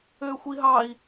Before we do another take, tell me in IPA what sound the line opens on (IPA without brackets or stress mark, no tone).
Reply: øː